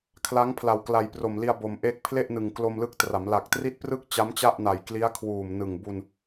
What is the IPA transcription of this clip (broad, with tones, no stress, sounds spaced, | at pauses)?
kʰ l a˦˥ ŋ pʰ l a˨˩ w k l a˨˩ j p r o˨˩ m l i˧ a̯ b o˨˩ m ʔ e˥˩ k̚ pʰ l e˥˩ ʔ n ɯ˨˩ ŋ k l o˧ m l ɯ˦˥ k̚ t r a˩˦ m l a˨˩ k̚ t r i˥˩ t̚ p r ɯ˥˩ k̚ t͡ɕ a˦˥ m t͡ɕ a˥˩ ʔ n a˨˩ j k l i˦˥ a̯ kʰ w uː˨˩ m n ɯ˨˩ ŋ b u˧ n